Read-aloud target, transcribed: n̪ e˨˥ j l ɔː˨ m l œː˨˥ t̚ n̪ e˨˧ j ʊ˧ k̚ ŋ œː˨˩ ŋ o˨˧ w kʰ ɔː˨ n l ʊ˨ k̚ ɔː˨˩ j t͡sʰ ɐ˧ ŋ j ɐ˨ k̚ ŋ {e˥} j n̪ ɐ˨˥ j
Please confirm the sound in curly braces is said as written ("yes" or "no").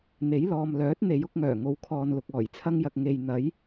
no